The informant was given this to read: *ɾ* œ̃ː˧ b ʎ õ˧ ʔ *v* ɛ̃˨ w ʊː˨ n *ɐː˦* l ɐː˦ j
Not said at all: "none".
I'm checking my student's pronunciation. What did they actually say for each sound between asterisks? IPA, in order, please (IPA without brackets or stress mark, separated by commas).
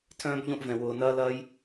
tʰ, v, ɐː˦